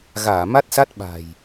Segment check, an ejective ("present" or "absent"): absent